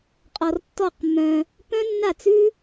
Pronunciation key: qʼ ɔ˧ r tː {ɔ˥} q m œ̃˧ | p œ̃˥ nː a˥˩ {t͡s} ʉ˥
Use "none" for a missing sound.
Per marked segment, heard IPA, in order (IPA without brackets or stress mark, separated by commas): ɔ˥˧, t͡s